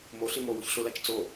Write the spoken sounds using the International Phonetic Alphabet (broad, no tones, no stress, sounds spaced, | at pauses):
m o ɬ i m o w o ç ɬ ʊ l a t͡ʃ t͡s o